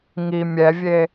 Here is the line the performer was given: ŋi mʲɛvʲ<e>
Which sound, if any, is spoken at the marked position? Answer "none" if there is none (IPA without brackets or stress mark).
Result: e